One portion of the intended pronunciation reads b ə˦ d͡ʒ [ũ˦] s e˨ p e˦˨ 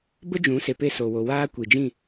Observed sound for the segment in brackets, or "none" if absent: ũ˨˦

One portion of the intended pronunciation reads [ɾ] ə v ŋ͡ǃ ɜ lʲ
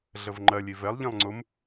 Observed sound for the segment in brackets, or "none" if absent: ɮ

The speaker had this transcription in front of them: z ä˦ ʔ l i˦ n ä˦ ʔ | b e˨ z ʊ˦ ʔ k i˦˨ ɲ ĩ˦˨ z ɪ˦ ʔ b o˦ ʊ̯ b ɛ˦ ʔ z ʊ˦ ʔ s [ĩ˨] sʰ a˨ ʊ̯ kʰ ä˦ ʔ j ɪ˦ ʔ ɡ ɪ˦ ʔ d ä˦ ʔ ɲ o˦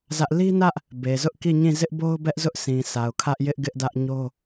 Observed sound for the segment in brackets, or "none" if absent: ĩ˨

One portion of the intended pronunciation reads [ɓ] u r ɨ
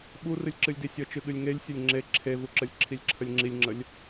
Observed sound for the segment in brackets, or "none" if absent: ɓ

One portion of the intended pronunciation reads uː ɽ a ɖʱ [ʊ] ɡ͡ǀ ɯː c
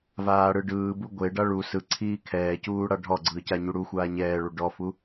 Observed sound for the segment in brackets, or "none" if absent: ɔ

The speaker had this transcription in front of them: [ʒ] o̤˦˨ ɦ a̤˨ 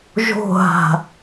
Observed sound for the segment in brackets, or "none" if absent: ʒ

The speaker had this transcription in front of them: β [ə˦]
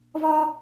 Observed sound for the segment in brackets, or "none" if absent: ɔ˦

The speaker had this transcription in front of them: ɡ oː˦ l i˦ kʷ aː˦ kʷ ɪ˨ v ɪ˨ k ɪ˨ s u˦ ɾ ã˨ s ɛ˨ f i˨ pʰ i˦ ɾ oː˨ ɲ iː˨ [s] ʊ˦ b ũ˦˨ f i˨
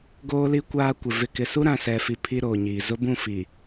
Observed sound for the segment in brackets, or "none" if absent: z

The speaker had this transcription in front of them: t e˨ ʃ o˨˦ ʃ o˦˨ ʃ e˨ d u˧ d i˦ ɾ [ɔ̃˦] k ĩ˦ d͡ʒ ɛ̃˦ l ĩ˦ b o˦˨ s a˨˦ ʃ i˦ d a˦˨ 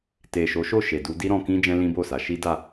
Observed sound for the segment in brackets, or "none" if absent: ɔ̃˧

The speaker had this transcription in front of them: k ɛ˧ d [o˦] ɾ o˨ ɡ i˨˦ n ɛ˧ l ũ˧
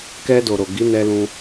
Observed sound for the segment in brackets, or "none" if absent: o˨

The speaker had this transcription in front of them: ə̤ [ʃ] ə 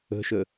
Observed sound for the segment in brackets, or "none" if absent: ʃ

